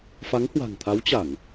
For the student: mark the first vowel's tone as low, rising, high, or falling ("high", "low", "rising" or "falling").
rising